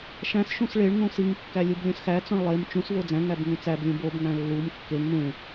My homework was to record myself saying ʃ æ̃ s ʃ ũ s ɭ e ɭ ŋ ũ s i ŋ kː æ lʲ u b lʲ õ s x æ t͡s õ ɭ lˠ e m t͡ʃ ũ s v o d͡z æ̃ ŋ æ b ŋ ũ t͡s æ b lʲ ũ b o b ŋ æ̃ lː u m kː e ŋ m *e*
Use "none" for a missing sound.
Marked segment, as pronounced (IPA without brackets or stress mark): ẽ